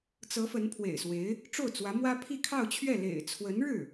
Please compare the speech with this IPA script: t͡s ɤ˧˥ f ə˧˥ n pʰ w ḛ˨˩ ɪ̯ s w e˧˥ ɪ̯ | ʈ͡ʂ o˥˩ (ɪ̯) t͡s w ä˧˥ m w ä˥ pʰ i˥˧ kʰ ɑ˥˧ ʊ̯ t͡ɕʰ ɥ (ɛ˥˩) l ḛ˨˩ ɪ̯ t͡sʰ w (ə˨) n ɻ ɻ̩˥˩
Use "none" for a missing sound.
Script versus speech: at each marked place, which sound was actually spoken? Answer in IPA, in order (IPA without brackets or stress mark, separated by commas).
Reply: ʊ̯, ɛ˥˩, ə˧˥